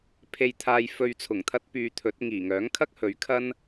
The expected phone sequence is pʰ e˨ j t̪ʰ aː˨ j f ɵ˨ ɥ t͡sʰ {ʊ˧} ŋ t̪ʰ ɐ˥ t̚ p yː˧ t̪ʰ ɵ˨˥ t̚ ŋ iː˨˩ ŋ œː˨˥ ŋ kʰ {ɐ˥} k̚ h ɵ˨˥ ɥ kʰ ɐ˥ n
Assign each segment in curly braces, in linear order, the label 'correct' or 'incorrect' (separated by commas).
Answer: incorrect, correct